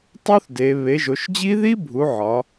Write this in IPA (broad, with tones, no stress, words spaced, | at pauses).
tˤu˦˥θ de˩˧ βe˩˧ʒo˩˧ʃd͡ʑi˦˥ ði˦˥bʱu˩˧ ʕɒ˩˧